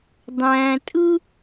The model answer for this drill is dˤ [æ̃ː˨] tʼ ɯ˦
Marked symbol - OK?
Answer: yes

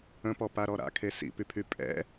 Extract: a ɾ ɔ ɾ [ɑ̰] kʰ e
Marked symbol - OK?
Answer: no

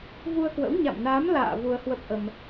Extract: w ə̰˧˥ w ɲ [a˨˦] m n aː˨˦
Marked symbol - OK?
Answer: no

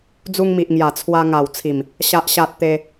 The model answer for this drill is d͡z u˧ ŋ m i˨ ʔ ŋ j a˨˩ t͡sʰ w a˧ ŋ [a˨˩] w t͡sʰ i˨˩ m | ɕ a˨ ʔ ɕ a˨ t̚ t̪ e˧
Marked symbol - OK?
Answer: yes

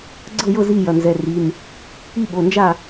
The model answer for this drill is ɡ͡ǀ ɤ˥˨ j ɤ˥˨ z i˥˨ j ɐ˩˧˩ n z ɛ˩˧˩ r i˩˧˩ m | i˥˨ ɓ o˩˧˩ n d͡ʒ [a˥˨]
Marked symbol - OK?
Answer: yes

